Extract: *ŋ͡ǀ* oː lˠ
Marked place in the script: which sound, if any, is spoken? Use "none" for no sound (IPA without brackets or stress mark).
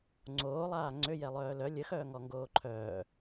ŋ͡ǀ